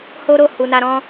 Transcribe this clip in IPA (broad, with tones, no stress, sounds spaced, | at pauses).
h o˦ ɾ o˦˨ h u˨ n a˧ ɾ ɔ̃˦